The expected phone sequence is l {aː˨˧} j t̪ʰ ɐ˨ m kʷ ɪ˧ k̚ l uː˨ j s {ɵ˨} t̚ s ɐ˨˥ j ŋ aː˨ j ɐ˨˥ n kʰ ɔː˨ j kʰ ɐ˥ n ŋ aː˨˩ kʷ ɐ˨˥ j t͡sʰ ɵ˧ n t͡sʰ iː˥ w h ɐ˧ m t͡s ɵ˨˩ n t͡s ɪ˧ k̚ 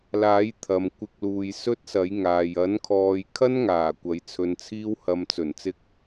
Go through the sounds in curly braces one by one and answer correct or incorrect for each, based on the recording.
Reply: incorrect: aː˨˥, incorrect: ɵ˥

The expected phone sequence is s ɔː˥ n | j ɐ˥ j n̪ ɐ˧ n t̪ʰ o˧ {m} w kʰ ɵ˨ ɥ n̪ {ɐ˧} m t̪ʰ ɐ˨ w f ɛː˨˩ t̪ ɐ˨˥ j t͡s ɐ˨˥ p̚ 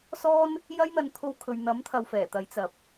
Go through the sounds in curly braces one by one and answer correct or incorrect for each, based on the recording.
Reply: incorrect: none, incorrect: ɐ˨˥

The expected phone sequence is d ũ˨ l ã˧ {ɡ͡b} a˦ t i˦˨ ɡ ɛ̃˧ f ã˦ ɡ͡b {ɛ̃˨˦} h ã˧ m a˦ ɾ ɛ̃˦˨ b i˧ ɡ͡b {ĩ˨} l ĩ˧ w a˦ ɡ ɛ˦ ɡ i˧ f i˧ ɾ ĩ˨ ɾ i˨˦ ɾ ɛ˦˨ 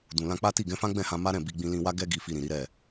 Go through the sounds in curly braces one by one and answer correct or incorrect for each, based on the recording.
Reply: incorrect: k͡p, incorrect: ɛ̃˦˨, incorrect: ĩ˧

